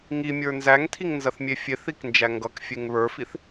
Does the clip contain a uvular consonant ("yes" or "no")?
no